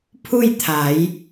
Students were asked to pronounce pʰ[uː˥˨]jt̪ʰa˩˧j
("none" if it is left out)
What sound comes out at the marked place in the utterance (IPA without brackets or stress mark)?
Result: u˥˨